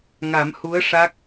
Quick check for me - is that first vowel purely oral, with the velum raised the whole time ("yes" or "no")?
yes